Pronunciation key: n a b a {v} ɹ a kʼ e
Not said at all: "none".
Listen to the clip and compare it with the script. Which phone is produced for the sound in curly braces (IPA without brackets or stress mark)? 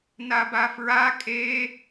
f